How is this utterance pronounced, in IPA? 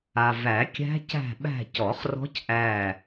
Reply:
a˨ v æ˨˩˦ kʲ æ̤˦˥ c æ̤˦˨ ɓ æ̤˦˨ c ɔ˨˩˦ χ r ɔ̤˦˥ c ʔ æ˦˨

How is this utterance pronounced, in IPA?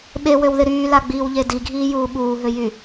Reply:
ɓ e w ø w ð ɪ ɾ yː l a ɡ͡b iː w ʎ e d i ɡʱ iː j uː ɓ uː ɦ ø j y

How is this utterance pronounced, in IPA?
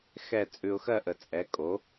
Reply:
x ɛ˥˨ t͡sʼ ʉ˨ ʊ̯ x ɜ˥˨ ʔ ə˨ t͡sʼ ɛ˩˥ kʼ o˩˥

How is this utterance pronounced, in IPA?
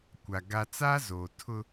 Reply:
kʷ a˨ ɡ a˦ t͡s aː˦ z oː˨ tʰ ʊ˦

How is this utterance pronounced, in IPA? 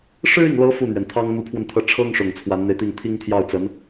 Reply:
ʂ ɻ̩˥ i˨ ŋ l ɤ˧˥ f u˥˩ n̪ ɥ ɛ˩ n t̪ʰ ɑ˥ ŋ n̪ u˧˥ pʰ w ə˧ n t̪ʰ ɤ˧˥ ʈ͡ʂʰ ɤ˥ ŋ ʂ ʊ˨˩ ŋ t͡sʰ w a˧˥ n n̪ e˧ ɪ̯ t̪ i˥˩ ŋ t̪ʰ i˥ ŋ t̪ʰ j ɑ˥˩ ʊ̯ t͡s ə˧˥ n

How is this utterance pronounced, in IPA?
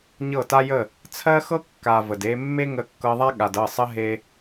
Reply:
ɲ ɤ˦˨ t a˦ j ə˦˨ | t͡sʰ ɜ˦ x ɤ˦ kː a˨ v ə˨ d e˧ mː e˦ ŋ ə˧ kː ɤ˧ ðˤ a˦ ɠ a˨ d ɤ˦˨ sˤ ə˦ ɦ e˧

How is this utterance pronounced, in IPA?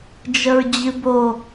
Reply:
d͡ʒ ə ɹ d͡ʑ ɨ b o

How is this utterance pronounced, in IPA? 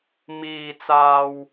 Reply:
m iː˨ t͡s aː˨ w

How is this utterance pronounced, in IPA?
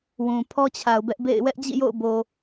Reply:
w ũ˨ pʰ ɔ˦ t͡ɕʰ a˨ ʊ̯ b ɛ˦ ʔ b ḛ˦˨ ɪ̯ w ɛ˦ ʔ d͡ʑ ḭ˦˨ j o̰˦˨ ʊ̯ b o˨

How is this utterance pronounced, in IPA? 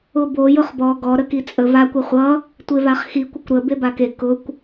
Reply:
ʊ b o j ʊ χ b ɔ ɡ ɔ ɾ ə k i t͡sʼ ə v a kʷ ʌ χʷ ʌ | tʷ e v a χ x i kʷ ə kʷ ɾ ə b e b a k e k ʊ kʷ

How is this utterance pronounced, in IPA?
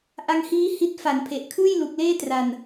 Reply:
ʔ a˧ ŋ h iː˦˥ h i˥˩ t̚ f a˩˦ n pʰ e˨˩ ʔ kʰ ɯː˥˩ j l u˨˩ k̚ l eː˥˩ t r a˨˩ n

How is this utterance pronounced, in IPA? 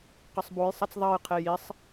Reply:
q ɐ sˤ b o j sˤ ɐ t͡s ðˤ ɐ j qʰ e j i sˤ

